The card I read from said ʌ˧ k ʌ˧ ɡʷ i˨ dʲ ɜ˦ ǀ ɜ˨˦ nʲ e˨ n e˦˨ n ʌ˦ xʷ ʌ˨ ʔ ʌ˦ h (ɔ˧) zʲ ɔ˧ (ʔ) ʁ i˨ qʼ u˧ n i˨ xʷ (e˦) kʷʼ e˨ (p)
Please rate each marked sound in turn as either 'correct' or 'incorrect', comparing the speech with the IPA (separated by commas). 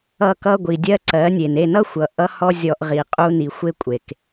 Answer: incorrect, correct, correct, incorrect